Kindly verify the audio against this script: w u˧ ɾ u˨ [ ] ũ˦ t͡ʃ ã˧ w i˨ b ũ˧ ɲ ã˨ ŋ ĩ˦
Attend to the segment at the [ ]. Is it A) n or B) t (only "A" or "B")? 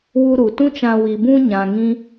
B